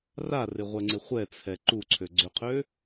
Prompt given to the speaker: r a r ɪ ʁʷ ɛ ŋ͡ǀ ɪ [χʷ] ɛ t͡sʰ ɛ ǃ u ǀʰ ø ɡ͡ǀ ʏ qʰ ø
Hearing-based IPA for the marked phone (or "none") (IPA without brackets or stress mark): χʷ